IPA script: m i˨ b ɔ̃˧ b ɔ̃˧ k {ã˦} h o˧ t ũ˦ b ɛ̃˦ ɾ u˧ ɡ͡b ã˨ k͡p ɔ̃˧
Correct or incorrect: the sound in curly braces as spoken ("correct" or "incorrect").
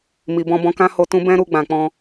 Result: correct